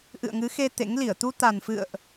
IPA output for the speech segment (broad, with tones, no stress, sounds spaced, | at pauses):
ʔ ɨ̰˧˨ ə̯ ŋ ɨ˨˦ x e˧ t̪ ḛ˧˥ ŋ l i˧˩ ə̯ t̪ u˧ t̪ a˨˩ n f ɨ̰˧˨ ə̯ ʔ